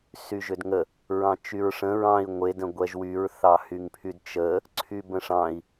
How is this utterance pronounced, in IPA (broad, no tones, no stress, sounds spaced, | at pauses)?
s y ʒ ʏ d ŋ ə | ɹ ɑ̃ t͡ʃ y ɹ ʂ ə̃ ɹ ɑ̃ i̯ ŋʷ e d ə̃ ɡʷ ɛ ʒ w y ɹ θ ɑ h y ŋ pʰ y d t͡ʃ ə | ǀʰ y b ə̃ ʂ ɑ̃ i̯